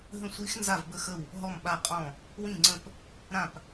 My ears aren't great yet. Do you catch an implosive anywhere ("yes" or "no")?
yes